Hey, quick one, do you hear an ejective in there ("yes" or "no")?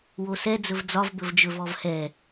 no